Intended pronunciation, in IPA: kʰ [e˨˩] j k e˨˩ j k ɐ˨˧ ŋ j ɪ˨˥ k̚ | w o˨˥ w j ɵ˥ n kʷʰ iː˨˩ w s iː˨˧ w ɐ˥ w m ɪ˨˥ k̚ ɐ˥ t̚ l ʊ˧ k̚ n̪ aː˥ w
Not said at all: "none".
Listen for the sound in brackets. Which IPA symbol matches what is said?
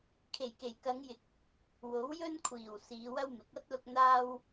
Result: e˨˩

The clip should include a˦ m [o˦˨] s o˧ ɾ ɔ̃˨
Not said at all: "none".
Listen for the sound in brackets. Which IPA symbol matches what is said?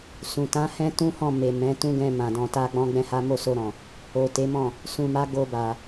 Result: o˦˨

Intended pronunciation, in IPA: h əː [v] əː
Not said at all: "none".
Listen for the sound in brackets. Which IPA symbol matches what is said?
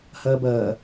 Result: b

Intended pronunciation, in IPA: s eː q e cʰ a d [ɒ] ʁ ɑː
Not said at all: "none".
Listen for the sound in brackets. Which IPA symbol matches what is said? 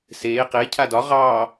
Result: ɒ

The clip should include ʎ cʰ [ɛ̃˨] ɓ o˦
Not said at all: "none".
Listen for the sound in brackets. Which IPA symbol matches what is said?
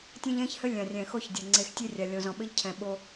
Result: ɛ̃˨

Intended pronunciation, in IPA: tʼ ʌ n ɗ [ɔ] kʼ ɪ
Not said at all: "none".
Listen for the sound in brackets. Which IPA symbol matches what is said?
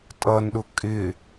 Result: ʊ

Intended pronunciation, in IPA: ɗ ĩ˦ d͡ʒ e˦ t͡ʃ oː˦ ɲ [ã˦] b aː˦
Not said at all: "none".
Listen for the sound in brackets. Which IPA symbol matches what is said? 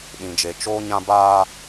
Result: ã˦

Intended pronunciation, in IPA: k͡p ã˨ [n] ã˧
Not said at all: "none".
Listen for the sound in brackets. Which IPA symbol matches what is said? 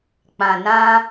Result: n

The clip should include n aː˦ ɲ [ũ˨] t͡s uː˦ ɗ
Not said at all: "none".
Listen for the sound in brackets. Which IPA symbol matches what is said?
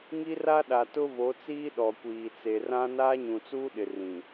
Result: ũ˨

